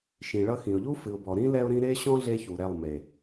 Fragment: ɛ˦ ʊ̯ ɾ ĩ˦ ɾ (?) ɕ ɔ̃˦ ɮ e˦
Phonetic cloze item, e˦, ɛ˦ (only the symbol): e˦